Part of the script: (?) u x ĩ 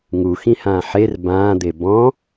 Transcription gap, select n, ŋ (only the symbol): ŋ